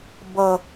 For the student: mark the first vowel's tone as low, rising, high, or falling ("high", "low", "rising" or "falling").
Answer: low